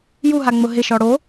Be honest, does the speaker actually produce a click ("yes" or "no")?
no